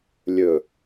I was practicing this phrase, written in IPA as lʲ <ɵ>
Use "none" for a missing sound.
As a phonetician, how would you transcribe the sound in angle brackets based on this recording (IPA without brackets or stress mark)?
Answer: ɵ